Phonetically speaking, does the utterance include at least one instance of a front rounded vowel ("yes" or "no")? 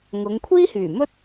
yes